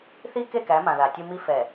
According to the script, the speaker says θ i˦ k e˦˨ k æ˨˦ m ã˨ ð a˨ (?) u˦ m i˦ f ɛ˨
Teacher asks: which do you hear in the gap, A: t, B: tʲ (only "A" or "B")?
B